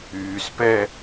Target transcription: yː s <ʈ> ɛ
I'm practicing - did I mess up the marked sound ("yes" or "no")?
yes